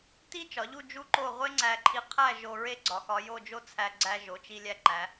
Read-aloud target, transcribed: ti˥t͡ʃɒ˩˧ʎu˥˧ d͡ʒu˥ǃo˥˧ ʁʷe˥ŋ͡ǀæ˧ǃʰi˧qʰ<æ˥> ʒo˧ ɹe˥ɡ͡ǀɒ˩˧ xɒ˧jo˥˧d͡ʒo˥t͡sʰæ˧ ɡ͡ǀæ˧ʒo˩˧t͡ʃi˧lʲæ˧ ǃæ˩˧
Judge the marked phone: incorrect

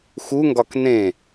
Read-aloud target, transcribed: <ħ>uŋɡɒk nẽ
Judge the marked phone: incorrect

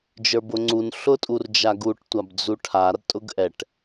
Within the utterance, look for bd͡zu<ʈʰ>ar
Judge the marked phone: correct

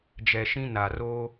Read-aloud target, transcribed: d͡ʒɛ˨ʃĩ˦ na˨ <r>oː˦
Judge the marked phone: correct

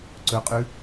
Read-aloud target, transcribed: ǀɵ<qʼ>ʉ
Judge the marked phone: correct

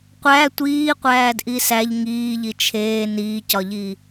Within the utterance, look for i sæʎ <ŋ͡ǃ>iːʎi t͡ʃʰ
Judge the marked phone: incorrect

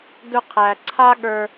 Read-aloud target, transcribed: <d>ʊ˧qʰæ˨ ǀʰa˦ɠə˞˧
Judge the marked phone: correct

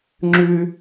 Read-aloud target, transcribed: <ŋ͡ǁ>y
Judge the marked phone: correct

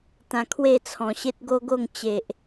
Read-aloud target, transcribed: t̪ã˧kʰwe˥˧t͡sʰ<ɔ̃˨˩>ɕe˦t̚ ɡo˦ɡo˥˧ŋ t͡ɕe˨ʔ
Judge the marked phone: correct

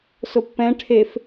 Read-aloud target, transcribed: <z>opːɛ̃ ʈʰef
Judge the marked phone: incorrect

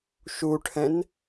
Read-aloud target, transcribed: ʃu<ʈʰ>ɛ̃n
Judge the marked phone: correct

